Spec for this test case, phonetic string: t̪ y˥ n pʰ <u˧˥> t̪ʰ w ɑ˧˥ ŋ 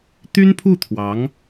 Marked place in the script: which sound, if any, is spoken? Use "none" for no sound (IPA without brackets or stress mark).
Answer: u˥˩